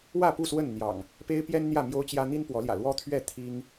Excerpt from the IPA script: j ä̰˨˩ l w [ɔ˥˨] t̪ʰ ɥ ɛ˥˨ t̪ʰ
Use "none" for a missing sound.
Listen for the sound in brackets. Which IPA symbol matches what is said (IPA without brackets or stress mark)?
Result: ɔ˦